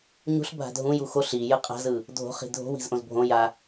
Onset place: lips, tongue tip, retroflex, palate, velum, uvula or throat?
palate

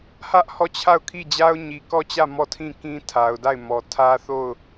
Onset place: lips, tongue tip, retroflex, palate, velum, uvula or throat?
throat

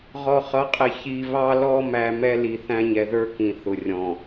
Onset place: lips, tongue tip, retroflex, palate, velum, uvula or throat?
uvula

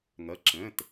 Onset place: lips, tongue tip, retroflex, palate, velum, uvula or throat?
velum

